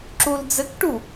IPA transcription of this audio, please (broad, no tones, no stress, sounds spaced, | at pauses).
ǁ u l d͡z ɘ k ʈ u